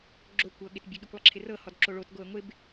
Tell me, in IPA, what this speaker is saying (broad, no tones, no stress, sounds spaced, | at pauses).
ɡ͡ǁ o kʷ ɤ ɠ ɪ t bʲ ə ɠ i kʷ lˠ ɪ ǁʰ ɪ r ɤ h ɔ d ǁ o ɭ o t ɡ o ə̯ ŋʷ ɪ b